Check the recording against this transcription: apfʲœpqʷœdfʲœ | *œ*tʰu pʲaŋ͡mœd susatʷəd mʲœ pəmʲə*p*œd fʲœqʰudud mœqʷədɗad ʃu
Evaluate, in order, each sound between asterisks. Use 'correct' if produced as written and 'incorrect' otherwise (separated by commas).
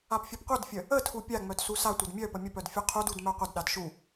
incorrect, correct